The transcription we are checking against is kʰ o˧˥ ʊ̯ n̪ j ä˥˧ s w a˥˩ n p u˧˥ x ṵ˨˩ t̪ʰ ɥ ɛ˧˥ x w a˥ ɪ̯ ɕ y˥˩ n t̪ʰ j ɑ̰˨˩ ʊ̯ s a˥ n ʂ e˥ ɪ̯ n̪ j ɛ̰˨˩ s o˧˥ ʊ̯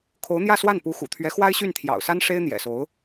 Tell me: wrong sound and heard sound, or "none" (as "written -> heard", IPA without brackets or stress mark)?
none